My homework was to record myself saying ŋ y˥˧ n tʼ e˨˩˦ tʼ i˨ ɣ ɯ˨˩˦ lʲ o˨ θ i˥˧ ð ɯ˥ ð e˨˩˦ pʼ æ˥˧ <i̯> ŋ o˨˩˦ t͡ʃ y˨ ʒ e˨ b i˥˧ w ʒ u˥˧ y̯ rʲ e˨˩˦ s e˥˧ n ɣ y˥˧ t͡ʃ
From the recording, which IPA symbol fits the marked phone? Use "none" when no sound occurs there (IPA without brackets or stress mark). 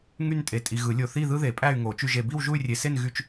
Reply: y̯